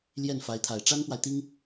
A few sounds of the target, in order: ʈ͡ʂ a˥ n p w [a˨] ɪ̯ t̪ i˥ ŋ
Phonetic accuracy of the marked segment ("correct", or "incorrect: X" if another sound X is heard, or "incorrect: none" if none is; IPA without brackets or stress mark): correct